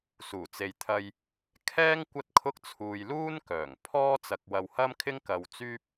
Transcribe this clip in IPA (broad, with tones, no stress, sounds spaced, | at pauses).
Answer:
s uː˨˩ t͡s e˨ j t̪ʰ ɐ˧ j | kʰ ɛː˥ ŋ kʷ ɐ˥ t̚ kʰ ʊ˥ k̚ t͡sʰ uː˧ j l uː˥ n k œː˨˩ ŋ pʰ ɔː˥ t͡s ɐ˧ k̚ w ɐ˧ w h ɐ˥ m kʰ ɪ˥ ŋ k ɐ˧ w t͡s yː˥ p̚